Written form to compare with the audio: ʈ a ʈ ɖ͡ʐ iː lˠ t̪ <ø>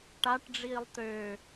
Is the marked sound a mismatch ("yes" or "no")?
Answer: no